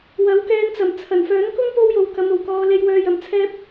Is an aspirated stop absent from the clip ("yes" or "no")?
no